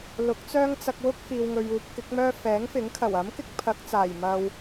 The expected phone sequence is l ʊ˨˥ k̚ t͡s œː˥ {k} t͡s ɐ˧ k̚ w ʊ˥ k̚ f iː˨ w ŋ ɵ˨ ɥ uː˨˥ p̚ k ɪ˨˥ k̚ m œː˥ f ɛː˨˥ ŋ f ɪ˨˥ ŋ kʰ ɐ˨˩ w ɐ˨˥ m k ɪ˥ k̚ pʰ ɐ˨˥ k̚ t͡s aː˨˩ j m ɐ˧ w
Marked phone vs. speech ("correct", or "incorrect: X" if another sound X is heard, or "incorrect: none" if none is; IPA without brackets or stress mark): incorrect: ŋ